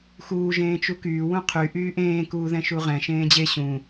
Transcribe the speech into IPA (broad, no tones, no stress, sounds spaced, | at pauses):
x uː ʒ ẽː t͡ʃ u k yː w ũ qʰ y ʔ yː ʔ ẽː k uː ð ɛ̃ ʃ u ʁ ɛ̃ ʃ ẽː d͡ʑ e ɕ ũ